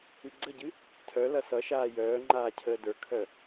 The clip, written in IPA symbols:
ɨ ɡ͡ǀ ə ɟ ɨ | tʰ œ l ʌ s ʌ ʃ aː j œː ŋ͡ǃ aː cʰ əː d ə˞ kʰ œ

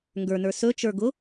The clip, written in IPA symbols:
ŋ ɡ ə˞ n ə˞ s ɵ t͡ʃ ə˞ ɡ ʊ

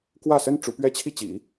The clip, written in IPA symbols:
k w ä˥˩ s ə˥ n ʈ͡ʂ u˧˥ p ɥ ɛ˥ t͡ɕʰ i˥˩ t͡ɕ ḭ˨˩˦

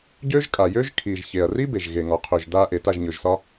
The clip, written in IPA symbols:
ɟ ø˦ ʒ kʼ a˨ j ø˦ ʒ kʰ i˨ ʒ ç e˨ ɐ̯ r i˦ b e˨ ʒ ɣ e˨ ŋ ɒ˨ qʰ ɵ˨ ʒ d a˧ ʔ e˨ t a˦˨ ʒ ɲ ɵ˨ ʒ s ɒ˦

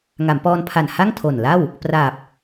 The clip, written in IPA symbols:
ŋ a˩˦ m p ɔː˧ n pʰ a˨˩ n h a˥˩ ŋ tʰ o˨˩ n l a˥˩ w | p r aː˨˩ p̚

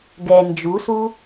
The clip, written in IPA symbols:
ɡ ɛ n d͡ʒ u s u

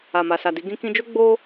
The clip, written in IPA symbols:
a˨ m a˨ s a˨ d i˨˦ ɡ ĩ˧ k ĩ˧ d͡ʒ o˦ ɡ͡b o˦

